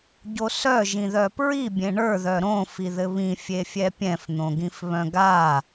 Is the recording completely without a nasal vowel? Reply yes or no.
no